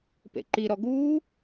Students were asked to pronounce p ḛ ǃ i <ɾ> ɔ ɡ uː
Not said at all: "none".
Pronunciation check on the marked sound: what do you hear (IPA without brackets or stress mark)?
ɾ